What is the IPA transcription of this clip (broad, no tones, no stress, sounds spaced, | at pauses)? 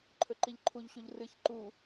ǃʰ ɵ ǃ i ʎ ǃʰ u ʎ ɕ u ʎ r ɨ ç ǃ u